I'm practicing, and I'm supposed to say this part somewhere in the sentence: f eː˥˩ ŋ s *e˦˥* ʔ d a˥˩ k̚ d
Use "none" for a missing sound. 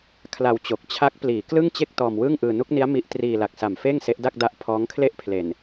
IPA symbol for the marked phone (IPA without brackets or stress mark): e˦˥